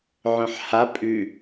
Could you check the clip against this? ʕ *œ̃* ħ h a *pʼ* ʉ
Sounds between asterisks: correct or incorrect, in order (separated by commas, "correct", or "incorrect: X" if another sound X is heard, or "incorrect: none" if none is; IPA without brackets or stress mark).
correct, correct